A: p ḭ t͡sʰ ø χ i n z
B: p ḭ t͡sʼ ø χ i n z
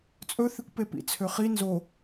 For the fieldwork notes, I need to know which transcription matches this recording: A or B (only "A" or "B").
A